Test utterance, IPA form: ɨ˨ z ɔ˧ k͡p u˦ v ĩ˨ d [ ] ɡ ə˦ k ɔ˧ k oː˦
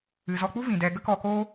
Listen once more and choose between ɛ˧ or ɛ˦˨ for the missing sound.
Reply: ɛ˧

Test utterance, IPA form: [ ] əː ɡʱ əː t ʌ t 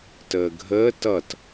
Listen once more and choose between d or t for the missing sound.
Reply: t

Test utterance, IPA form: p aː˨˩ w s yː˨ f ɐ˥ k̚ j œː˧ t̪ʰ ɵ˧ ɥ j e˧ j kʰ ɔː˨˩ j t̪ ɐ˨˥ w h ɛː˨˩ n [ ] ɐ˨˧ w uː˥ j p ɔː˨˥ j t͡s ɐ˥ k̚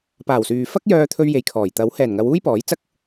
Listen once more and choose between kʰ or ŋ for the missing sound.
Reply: ŋ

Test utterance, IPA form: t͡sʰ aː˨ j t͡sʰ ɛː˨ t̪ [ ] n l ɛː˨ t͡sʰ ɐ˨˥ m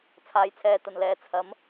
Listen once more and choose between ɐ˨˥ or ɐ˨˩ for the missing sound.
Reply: ɐ˨˩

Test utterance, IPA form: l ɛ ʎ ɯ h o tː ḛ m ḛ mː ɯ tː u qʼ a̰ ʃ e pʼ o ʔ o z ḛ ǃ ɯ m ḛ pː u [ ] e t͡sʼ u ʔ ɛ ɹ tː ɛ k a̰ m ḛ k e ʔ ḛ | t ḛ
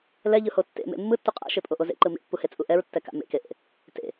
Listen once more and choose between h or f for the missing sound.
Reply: h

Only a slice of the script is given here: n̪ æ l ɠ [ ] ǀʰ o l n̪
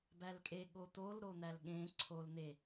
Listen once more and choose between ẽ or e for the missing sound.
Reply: ẽ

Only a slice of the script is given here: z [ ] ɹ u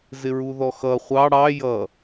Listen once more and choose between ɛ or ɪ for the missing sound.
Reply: ɪ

